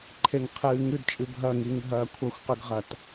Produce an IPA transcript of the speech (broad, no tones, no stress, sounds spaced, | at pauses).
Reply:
ǃʰ e ŋ qʰ ɨː ŋ ʉ d t͡ʃʼ ɨ bʱ ɐ ŋ i ŋ ɦ ɐː kʷʰ ɐ xʷ q ʉ ɡ ʁ ɐ t